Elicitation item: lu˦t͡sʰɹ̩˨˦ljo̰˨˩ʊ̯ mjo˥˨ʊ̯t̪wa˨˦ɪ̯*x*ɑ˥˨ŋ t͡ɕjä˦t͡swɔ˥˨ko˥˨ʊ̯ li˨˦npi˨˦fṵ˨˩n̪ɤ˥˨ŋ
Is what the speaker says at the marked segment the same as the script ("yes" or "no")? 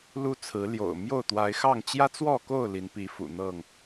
yes